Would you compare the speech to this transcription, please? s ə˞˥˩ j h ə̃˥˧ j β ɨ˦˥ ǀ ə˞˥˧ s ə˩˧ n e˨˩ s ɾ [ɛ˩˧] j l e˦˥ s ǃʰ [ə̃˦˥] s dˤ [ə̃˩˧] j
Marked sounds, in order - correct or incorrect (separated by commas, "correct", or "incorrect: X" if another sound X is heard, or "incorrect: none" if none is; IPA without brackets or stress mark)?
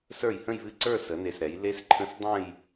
correct, correct, incorrect: ə̃˥˧